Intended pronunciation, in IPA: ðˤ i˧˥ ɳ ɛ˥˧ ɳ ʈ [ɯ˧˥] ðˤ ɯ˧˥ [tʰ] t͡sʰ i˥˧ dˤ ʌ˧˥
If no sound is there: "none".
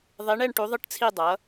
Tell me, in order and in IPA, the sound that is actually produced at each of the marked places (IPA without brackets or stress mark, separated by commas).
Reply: u˧˥, ʈ